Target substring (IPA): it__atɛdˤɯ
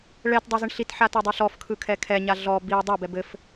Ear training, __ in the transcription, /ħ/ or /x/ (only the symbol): ħ